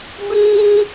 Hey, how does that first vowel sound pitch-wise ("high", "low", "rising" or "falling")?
high